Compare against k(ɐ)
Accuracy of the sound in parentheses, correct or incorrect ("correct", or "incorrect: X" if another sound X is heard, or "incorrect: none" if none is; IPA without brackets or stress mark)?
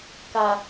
correct